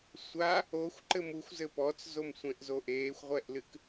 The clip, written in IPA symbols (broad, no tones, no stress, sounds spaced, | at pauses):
sʷ a | o xʷ ǃ ɘ m u xʷ z ɘ p ɔ t͡s z o m sʷ ẽ ʔ z o ʔ eː xʷ ʁʷ ɛ ʔ l ɨ k